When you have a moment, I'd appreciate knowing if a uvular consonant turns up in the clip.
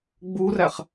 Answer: yes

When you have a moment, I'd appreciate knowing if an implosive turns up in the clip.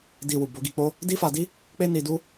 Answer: no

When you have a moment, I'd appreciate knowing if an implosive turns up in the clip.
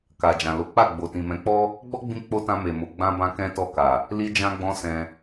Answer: no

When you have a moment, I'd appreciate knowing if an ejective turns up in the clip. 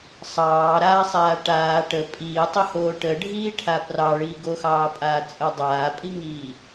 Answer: yes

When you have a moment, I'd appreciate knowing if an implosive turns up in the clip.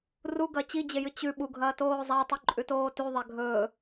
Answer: yes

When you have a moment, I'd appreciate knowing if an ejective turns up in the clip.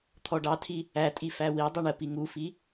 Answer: yes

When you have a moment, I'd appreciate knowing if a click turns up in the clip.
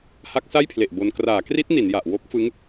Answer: no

